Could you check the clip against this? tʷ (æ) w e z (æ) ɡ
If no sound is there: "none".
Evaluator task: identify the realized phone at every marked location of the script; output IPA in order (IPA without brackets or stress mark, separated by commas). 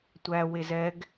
æ, ɛ